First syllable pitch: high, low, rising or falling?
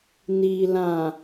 low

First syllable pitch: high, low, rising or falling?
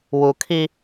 low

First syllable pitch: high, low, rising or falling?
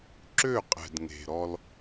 falling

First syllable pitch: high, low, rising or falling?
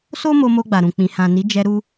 high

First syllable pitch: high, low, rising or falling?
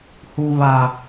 low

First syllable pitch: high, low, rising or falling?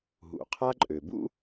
low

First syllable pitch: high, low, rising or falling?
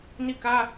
falling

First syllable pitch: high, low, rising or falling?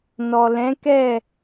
low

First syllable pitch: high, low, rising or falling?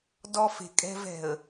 high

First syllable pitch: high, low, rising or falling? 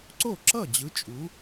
falling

